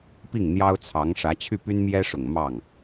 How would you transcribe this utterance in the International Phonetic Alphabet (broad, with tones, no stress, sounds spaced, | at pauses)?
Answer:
p i˥˩ ŋ n̪ j ɑ˥ ʊ̯ t͡sʰ ɑ˧˥ ŋ ʂ ä˧˥ t͡ɕʰ y˥˩ p y˥ n m j ɛ˥ ʂ ʊ˨˩ ŋ m ɑ˥˩ ŋ